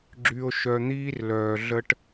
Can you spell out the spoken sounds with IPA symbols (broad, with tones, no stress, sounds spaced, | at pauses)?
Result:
ɡ͡ǁ y˨ o̯ ʃ œ˨ n̪ iː˦ r l œː˨ ɮ ə˦ ʈ